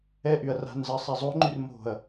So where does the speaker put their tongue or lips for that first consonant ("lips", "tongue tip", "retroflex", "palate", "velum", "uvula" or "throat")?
throat